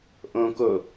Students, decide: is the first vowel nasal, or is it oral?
nasal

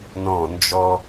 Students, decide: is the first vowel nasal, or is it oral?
nasal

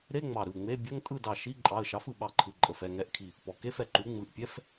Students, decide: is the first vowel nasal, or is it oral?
oral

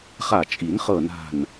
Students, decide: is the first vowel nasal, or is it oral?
oral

